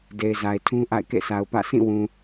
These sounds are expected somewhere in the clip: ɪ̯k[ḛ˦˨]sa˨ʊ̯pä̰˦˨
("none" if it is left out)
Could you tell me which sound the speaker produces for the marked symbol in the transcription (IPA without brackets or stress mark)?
ḛ˦˨